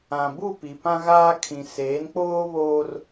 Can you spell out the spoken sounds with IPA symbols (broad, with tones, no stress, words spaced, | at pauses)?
ã˨bu˦˨pi˨ pã˦ɣaː˦kʰĩ˨ seː˨˦nk͡poː˦βoː˦r